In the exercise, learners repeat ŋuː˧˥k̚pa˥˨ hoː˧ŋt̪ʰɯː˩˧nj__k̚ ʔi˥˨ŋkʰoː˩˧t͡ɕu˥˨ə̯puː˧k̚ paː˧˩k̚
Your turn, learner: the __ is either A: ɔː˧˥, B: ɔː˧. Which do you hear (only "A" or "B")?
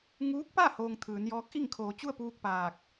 A